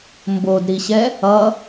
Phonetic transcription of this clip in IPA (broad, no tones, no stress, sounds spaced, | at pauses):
m b o d ɾ i ɕ ɛ | ʌ